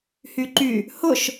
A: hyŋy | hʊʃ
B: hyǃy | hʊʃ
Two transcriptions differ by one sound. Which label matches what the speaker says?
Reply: B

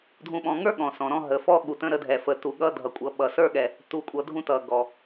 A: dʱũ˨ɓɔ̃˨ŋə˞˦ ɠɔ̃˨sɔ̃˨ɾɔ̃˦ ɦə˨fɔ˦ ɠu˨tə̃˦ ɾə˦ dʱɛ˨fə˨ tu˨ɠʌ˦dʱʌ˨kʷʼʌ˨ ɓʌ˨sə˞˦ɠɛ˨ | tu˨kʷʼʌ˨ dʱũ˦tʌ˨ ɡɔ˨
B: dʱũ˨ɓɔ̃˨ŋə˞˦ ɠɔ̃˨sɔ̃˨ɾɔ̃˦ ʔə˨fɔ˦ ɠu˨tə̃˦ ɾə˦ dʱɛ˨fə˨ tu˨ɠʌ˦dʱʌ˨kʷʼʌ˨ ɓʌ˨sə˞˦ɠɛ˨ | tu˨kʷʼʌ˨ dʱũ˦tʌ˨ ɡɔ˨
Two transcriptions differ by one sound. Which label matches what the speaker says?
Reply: A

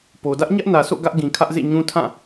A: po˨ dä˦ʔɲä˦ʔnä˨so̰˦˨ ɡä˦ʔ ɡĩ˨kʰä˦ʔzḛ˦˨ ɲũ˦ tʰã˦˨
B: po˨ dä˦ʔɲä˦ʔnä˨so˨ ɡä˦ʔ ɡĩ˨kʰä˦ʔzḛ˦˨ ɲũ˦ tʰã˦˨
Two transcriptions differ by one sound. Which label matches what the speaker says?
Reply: A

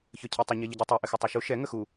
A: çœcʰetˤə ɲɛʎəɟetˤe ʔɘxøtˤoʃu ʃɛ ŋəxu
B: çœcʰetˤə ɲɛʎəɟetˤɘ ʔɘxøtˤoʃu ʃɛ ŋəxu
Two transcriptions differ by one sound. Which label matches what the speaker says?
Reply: A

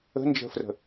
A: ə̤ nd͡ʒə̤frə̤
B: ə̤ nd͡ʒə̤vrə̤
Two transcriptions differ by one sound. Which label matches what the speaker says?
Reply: A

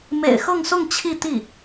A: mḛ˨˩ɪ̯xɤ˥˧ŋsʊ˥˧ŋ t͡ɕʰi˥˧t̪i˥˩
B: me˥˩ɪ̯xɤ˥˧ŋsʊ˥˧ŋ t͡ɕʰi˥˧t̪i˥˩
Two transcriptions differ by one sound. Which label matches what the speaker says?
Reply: A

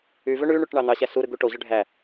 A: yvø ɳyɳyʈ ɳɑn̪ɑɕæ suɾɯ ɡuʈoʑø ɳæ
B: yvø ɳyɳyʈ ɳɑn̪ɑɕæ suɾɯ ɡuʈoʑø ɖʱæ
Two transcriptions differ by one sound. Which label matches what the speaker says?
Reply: B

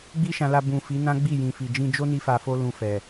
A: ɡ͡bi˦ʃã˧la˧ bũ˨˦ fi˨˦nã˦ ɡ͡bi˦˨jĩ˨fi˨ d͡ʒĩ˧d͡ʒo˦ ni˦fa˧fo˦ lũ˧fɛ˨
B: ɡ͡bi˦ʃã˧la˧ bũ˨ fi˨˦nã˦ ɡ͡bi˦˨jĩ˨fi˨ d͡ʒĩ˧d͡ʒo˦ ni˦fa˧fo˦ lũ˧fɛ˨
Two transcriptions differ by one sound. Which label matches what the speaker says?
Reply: B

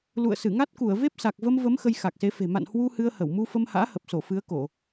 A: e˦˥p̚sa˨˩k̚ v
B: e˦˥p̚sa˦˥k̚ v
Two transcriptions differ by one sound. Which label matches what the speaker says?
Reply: A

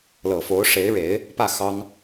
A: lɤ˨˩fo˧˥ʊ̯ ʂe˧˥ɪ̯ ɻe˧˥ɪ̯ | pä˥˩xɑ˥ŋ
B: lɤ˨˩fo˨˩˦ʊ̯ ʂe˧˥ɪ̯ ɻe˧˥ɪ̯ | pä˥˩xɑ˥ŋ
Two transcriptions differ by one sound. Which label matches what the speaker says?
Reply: A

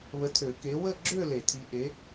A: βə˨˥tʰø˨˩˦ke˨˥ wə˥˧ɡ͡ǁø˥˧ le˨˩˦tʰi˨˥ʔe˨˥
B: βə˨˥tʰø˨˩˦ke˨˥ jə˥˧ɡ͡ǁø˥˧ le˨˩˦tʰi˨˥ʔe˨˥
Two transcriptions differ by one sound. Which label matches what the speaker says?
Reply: A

